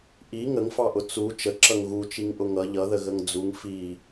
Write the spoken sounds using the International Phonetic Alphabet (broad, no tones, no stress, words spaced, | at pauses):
ʔi ŋəŋfɑʔʊ t͡su t͡ʃəǁʌŋ ɣut͡ʃiŋʔʊ ŋʌ ʎʌðəɣəŋ d͡zuŋ fi